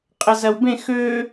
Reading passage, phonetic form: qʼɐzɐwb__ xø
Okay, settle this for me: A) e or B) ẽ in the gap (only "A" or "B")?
B